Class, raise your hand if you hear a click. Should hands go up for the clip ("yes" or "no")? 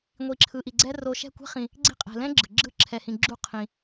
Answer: yes